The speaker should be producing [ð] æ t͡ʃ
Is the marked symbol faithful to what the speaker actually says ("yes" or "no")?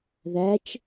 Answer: yes